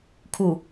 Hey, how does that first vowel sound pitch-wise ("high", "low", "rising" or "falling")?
low